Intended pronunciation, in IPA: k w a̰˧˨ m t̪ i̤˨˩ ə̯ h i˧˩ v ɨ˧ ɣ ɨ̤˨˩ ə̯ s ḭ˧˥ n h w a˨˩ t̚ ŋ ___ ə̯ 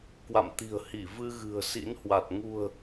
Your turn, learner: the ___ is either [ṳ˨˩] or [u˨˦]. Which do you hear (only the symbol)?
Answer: ṳ˨˩